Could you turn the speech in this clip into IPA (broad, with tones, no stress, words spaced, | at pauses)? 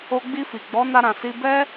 o˧ɡ͡bi˧fi˨ ɡ͡bɔ˨˦na˧ɾã˨ si˧bɛ˦